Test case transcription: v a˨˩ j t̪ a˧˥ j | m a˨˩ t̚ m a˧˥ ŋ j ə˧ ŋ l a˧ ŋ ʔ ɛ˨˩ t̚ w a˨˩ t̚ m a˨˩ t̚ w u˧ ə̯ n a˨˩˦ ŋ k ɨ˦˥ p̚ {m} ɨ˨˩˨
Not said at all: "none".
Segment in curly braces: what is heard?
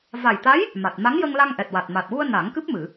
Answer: m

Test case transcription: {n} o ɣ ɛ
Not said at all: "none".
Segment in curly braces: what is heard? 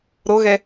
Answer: ɾ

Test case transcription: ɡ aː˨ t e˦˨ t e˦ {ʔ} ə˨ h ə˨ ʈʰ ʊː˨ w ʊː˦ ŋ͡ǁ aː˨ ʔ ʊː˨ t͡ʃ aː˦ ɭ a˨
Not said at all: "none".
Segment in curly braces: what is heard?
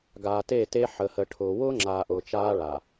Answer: ħ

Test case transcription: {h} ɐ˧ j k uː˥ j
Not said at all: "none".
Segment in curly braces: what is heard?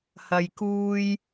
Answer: h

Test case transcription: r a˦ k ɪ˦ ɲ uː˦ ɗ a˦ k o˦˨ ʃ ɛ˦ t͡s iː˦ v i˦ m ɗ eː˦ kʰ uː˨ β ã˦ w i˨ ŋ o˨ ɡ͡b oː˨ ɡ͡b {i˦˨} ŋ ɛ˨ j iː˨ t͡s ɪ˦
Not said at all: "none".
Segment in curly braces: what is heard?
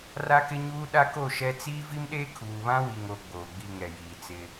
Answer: i˦˨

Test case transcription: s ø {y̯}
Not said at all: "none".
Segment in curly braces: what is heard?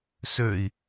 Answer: i̯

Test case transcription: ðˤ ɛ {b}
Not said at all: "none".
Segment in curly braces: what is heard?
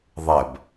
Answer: b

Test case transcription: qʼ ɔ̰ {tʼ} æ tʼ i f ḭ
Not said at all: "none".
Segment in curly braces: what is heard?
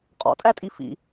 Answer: tʼ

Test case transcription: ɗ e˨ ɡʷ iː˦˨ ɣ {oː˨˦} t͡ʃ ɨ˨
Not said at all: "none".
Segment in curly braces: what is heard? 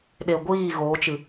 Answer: oː˨˦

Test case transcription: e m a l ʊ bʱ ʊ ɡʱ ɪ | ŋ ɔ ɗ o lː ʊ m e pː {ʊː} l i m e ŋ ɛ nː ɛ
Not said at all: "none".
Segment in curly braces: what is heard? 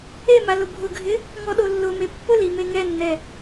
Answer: ʊ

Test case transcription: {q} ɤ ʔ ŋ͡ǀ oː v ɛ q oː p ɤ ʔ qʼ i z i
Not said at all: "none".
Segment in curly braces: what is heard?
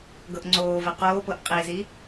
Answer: ɡ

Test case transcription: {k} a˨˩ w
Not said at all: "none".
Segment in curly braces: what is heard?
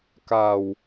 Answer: k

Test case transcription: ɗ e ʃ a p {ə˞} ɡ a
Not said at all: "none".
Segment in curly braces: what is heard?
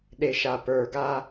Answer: ə˞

